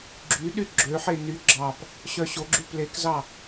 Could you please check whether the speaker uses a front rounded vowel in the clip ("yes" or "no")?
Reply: yes